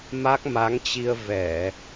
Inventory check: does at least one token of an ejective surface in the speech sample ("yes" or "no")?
no